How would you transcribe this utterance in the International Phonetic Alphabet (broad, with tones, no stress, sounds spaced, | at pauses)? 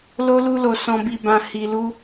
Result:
l o˦ l u˦ l o˧ s ɔ̃˧ b i˧ b ã˧ h i˧ l u˦